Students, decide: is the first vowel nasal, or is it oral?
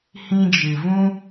nasal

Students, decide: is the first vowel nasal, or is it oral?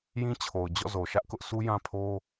nasal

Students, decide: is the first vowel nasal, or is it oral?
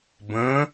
nasal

